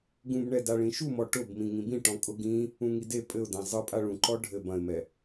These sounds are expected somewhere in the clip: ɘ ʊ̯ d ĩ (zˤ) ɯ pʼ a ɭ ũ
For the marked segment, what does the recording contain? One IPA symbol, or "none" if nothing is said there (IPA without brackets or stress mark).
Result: zˤ